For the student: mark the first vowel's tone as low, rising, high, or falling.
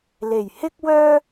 low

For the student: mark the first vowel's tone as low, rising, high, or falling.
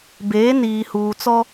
rising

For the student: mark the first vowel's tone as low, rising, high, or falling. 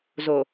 low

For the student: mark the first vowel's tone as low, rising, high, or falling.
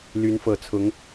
rising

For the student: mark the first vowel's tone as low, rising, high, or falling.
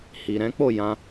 low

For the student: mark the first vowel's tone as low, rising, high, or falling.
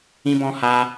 high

